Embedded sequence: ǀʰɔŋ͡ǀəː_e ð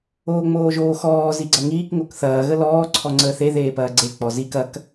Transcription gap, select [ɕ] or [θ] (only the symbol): θ